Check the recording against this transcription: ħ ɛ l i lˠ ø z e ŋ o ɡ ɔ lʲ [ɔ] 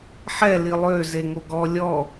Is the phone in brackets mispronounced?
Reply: no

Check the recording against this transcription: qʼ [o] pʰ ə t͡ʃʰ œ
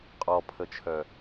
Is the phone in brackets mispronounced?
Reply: yes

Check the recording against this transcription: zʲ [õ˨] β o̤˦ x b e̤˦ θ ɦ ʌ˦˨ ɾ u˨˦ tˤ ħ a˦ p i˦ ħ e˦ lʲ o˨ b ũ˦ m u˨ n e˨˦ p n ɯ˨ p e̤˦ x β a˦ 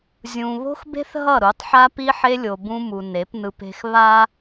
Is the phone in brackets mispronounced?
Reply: yes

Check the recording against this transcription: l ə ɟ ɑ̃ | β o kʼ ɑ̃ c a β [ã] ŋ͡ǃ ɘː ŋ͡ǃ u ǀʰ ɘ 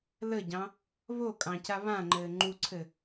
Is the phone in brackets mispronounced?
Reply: no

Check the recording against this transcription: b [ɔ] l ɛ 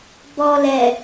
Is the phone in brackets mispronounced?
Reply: no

